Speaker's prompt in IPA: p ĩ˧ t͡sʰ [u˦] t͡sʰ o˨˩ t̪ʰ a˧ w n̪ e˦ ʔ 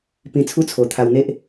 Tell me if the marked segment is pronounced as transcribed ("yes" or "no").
yes